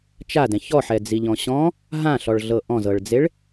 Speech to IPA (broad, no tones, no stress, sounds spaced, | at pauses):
t͡ʃ a d ɛ̃ ç ɔ ħ ɛ d͡z i ʎ ɔ̃ ɕ ɔ̃ | ɦ ã ɬ ɔ ɭ ɮ ɤ ʔ ɔ̃ z ɤ ɭ d͡z e ɭ